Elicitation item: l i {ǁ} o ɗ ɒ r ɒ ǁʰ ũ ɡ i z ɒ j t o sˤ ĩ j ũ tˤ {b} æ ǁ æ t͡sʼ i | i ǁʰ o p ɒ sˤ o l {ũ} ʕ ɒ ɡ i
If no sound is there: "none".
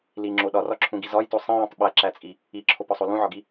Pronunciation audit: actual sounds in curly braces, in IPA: ŋ͡ǁ, ɓ, ũ

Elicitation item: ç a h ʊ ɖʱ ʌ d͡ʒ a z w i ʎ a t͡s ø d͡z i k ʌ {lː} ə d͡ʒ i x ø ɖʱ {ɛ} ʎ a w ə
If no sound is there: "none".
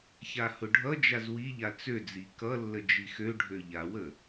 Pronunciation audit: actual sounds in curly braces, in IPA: lː, ø

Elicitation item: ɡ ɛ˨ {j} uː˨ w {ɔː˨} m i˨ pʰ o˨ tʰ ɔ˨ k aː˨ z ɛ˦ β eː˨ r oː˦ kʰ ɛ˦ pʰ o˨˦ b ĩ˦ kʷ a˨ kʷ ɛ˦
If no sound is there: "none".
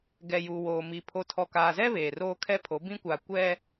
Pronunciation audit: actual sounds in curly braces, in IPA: j, oː˨

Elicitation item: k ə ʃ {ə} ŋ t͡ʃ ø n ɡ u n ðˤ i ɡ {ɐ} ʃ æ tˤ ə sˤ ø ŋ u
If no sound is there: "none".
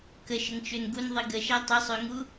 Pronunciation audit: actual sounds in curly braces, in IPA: ə, ə

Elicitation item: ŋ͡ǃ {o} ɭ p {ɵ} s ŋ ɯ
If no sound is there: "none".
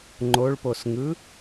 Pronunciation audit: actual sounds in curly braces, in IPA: o, o

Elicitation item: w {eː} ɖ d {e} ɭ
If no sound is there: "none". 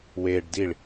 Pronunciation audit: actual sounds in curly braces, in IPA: eː, i

